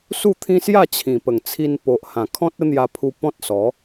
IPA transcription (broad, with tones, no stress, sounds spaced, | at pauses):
s u˥˧ t̪ʰ ĩ˦ s j a˥˧ t͡ɕʰ ĩ˨˩ p ə˨˩ ŋ t͡sʰ i˧ n p o˨ ʔ h ã˨˩ kʰ ɔ̃˦ t̚ ə˦ n̪ j a˧ pʰ u˧ p ɔ̃˦ t̚ s ɔ˨˦